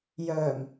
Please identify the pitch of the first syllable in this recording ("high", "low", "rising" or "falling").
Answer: low